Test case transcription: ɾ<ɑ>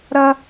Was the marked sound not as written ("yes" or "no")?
yes